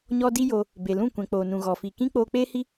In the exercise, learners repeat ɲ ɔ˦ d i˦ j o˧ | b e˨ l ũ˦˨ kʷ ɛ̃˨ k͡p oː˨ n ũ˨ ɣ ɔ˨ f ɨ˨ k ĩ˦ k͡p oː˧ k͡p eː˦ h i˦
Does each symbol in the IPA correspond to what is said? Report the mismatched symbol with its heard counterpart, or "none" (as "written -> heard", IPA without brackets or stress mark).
ɨ˨ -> i˨